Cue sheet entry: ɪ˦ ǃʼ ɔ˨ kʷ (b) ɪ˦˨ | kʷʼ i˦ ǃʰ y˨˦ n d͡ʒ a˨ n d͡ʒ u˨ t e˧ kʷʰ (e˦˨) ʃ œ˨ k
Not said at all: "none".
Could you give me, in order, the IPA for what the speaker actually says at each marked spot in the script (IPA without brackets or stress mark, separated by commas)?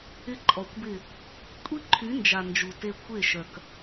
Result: b, e˦˨